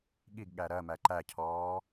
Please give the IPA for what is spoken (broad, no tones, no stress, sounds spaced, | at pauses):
ɠ i ɡ ɠ æ ɾ ɜ m æ ǃ æ cʰ ɔː